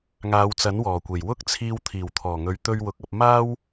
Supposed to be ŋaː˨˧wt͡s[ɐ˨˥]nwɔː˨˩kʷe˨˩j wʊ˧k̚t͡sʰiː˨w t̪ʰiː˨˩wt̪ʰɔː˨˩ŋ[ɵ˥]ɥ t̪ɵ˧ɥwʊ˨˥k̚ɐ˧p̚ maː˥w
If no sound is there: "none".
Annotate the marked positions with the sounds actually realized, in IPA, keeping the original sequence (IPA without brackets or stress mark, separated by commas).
ɐ˨˥, ɵ˨